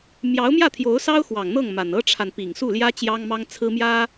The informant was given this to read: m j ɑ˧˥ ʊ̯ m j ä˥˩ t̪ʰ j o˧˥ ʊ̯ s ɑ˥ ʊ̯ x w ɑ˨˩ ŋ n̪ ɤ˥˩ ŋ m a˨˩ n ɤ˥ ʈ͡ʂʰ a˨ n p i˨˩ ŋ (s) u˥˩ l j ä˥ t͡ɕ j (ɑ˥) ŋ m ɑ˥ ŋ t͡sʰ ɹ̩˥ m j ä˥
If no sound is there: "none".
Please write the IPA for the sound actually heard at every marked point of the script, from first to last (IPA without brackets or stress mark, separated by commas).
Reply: s, ɑ˥